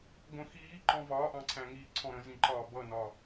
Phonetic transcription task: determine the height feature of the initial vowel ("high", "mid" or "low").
mid